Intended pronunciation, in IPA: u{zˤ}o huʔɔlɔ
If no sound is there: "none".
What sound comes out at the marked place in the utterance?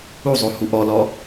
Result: zˤ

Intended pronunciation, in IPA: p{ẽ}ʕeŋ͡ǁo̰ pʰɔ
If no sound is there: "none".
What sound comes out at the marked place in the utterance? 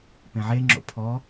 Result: ẽ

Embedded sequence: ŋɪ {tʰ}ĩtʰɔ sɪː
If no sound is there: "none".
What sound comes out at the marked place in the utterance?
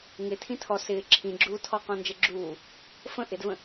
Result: tʰ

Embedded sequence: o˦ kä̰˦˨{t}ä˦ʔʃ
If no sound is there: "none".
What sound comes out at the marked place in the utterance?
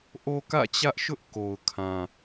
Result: t͡ɕ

